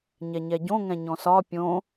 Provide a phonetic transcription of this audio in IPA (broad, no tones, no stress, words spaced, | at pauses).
ɲɛɲɛɟõ ŋɛ̃ɲɔ̃sɒ pʲõ